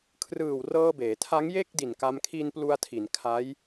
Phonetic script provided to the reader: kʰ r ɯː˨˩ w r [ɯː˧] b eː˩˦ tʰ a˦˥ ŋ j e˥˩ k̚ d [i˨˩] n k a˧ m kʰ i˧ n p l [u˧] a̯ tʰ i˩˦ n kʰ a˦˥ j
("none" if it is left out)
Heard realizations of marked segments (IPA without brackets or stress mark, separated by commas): ɤː˧, i˨˩, u˧